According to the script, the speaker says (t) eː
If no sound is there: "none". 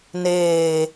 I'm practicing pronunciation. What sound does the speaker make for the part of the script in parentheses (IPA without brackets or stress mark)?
n